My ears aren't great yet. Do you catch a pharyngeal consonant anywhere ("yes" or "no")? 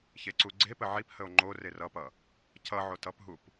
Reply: yes